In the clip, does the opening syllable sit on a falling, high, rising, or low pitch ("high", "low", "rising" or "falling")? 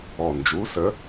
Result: low